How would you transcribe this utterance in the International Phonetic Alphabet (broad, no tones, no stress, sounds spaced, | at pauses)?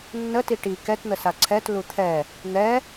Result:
nː ə t i ʈ i k ɛ t n̪ ə s a ǀʰ ɛ t l u t̪ʰ ɛ | n̪ ɛ